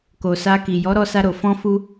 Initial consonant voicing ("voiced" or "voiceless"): voiceless